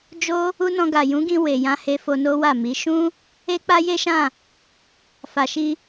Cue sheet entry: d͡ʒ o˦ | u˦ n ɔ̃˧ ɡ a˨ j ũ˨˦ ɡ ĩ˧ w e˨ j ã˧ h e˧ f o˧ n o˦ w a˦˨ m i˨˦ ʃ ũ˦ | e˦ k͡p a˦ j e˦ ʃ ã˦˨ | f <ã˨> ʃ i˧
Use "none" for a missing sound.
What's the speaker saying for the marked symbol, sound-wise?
a˨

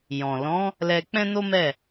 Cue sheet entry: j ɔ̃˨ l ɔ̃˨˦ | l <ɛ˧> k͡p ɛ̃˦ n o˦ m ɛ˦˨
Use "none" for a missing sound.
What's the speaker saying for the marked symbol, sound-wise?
ɛ˧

